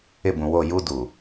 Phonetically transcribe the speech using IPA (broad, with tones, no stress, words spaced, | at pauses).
ɪ˦˨bũ˨wo˦˨ ju˦ duː˨